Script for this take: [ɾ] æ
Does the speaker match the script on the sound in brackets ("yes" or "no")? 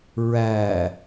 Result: no